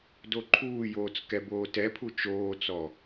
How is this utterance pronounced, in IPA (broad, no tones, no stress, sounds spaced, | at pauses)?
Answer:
d o ǃʰ uː j oː t͡s k ɛ b oː t ɛ pʰ u t͡ʃ oː t͡s ɔ